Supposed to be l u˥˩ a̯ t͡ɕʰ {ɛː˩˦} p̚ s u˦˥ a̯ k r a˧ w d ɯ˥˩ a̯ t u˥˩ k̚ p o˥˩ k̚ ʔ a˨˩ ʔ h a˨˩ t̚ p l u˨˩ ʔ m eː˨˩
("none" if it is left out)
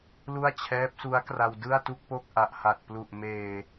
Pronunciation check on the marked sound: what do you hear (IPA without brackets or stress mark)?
ɛː˦˥